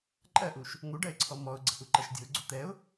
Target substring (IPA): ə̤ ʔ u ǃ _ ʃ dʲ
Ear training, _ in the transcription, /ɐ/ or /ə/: ɐ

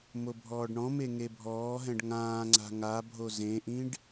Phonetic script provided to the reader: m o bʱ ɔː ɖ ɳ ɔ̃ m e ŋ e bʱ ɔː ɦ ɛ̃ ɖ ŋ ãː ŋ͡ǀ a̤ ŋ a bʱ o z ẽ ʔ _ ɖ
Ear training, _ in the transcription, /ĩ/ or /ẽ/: ĩ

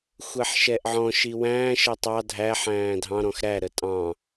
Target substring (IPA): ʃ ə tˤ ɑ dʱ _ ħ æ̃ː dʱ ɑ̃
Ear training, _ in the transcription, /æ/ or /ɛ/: æ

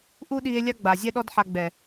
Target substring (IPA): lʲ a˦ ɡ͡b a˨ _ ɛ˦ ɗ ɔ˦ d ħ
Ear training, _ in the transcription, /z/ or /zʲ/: zʲ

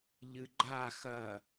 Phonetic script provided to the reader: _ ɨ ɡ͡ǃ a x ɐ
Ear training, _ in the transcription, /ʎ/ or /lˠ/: ʎ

